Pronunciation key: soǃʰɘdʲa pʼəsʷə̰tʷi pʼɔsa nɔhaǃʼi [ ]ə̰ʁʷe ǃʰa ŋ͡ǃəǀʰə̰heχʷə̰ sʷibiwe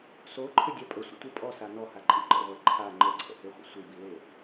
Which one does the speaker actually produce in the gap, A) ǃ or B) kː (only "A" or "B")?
A